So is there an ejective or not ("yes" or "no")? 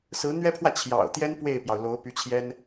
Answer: no